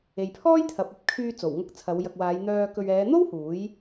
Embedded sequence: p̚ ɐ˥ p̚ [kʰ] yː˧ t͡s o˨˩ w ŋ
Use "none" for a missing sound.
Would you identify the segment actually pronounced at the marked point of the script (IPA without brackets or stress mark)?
kʰ